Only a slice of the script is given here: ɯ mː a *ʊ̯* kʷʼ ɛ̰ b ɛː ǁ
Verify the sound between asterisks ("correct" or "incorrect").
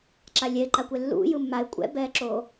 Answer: incorrect